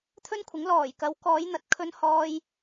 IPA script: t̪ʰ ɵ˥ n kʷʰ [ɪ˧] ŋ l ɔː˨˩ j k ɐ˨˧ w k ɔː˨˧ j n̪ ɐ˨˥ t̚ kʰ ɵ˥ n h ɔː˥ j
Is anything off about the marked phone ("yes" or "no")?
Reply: yes